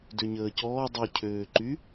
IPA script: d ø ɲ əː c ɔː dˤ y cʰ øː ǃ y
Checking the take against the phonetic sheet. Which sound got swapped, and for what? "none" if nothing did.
none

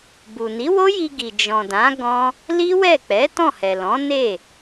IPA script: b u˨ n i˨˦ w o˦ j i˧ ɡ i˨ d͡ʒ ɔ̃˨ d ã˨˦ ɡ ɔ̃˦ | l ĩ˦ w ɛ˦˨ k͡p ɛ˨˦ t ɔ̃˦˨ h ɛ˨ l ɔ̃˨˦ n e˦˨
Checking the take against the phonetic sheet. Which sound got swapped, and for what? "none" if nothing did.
ĩ˦ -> i˦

